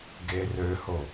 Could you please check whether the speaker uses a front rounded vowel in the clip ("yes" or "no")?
yes